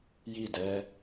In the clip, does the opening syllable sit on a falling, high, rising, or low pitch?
falling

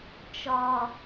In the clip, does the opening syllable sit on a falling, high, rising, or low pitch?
low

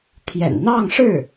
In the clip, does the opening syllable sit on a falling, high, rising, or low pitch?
low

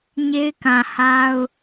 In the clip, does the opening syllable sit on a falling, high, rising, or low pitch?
high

